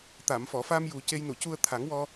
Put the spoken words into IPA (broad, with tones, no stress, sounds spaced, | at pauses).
t̪ a˨˩˨ m f ɔ˨˩˨ f a˧ m j u˨˩ c e˧ j n u˨˩˨ c u˧ ə̯ t̪ʰ a˨˩˦ ŋ w ɔ˧